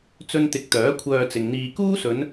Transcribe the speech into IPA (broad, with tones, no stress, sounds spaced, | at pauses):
t͡s ɵ˧ n t̪ ɪ˨ k̚ t̪ œː˨˥ kʷʰ œː˧ t͡s ɪ˨ ŋ n̪ iː˧ k uː˥ s ɵ˨˧ n